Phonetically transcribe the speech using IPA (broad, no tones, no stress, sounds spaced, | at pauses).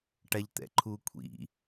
ʈ a ʎ t̪ ɛ̰ ǃʰ u kʷʰ ḭ